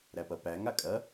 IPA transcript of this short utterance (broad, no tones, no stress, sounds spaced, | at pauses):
ɾ æ p ɐ p æ ŋ a kʼ ɐ